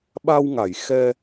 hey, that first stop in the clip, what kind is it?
implosive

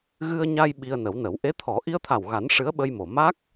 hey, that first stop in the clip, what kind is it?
implosive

